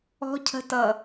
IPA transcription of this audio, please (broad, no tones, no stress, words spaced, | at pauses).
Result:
ɔ̤cʰə̤tʌ